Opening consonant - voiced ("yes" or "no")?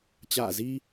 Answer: no